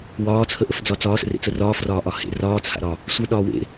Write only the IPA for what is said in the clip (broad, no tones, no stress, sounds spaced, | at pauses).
w ɒː t͡sʰ ə ʔ ə f d͡z ɒ t͡s ɒː s ə̰ r ḛ t͡s ə r ɒː f r ɒː ʔ ɒ h ḛ r ɒː t͡sʰ a̰ ɾ ɒ | sʷ ə ɗ ɒː w ḛ